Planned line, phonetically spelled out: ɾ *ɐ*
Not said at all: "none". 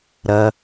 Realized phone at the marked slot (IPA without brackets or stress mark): ɐ